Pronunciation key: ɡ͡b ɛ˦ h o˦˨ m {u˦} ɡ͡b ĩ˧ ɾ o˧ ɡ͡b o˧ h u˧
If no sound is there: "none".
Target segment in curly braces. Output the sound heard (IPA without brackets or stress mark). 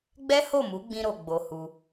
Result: u˨˦